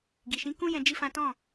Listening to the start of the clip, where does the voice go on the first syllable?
low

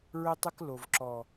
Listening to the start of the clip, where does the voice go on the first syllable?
high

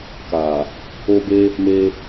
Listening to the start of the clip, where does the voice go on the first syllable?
low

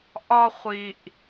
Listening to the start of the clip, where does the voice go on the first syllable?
high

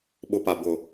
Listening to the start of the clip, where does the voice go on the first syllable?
high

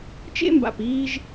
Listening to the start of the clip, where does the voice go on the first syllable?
high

